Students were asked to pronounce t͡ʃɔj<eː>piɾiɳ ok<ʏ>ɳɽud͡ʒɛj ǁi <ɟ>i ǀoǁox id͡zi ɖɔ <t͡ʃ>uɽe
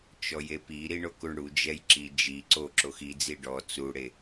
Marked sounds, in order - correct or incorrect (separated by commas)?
incorrect, incorrect, incorrect, incorrect